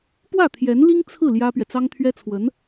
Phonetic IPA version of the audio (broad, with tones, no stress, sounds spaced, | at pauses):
p w ä˥˩ t̪ʰ j ɛ˧˥ n l i˥ ŋ t͡sʰ ɹ̩˥˩ l j ä˥ p ɥ ɛ˨ t͡s ɑ˥ ŋ t̪ʰ ɥ ɛ˥ t͡sʰ w ə˧˥ n